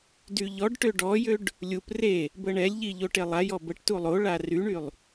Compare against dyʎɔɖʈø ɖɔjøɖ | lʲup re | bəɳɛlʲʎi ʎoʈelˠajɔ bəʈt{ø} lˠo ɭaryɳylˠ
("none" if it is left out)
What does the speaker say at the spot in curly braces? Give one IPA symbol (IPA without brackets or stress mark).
u